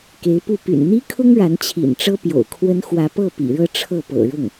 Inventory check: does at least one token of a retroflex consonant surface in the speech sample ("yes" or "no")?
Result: yes